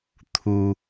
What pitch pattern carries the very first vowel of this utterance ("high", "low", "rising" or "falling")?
low